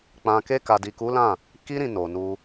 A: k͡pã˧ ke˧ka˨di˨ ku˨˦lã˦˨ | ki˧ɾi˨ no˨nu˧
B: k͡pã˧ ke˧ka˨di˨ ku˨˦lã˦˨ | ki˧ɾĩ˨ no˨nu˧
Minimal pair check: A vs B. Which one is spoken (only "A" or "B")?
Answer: B